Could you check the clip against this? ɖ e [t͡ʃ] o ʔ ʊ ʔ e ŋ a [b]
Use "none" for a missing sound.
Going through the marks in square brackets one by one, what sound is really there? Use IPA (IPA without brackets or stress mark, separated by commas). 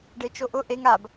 t͡ʃ, b